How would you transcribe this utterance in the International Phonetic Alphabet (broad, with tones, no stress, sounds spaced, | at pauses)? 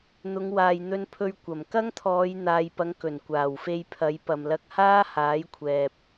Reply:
n̪ ʊ˨˧ ŋ w aː˨ j n̪ ɵ˧ n pʰ ɵ˧ ɥ kʷ ɐ˨˩ m k ɐ˥ ŋ t̪ʰ ɔː˨˧ j n̪ aː˨ j p ɐ˨˧ ŋ k ɵ˨˩ n kʷ aː˨˩ w f e˧ j pʰ ɐ˨˧ j p ɐ˨ m l ɐ˧ k̚ h aː˥ h aː˨˥ j kʷʰ ɛː˨ p̚